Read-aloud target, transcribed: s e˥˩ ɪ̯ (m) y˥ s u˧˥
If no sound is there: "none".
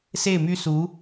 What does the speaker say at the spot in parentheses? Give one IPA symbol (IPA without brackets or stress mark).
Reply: m